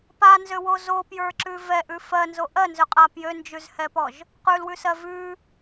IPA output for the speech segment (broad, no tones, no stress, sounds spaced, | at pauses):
p a n z ø w o z o p j ə˞ ǁ ʉ v ɛ ʔ ʉ f ɜ n z o ʔ ɜ n z ø qʼ a p j ø n d͡ʒ ʉ z h ɛ p ɔ ʒ | q ʉ l w ʉ s ɜ v ʉ